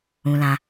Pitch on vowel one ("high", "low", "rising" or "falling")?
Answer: low